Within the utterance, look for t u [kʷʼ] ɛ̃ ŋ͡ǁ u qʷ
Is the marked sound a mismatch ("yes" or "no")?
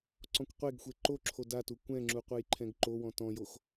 yes